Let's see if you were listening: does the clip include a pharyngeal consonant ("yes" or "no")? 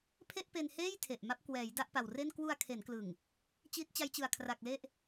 no